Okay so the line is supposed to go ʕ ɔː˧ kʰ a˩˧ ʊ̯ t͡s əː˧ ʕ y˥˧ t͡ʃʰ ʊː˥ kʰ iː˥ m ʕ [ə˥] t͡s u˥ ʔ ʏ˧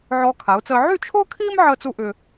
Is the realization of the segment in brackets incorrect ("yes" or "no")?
yes